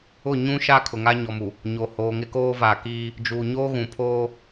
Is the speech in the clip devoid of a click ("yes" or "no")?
yes